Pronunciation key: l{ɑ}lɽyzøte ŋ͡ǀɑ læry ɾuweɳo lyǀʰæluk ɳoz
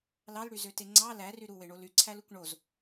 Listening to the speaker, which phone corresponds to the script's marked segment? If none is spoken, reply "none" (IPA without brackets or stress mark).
ɑ